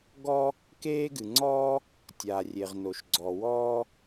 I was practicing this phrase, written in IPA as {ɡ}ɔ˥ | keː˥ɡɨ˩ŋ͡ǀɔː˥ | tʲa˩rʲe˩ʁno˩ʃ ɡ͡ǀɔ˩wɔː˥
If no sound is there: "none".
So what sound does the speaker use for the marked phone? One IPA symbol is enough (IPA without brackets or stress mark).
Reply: ɡ